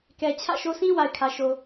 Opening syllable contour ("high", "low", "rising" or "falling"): low